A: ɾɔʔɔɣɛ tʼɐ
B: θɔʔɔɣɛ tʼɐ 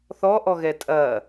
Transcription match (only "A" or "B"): B